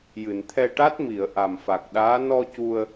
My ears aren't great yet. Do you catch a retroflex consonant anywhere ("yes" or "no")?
yes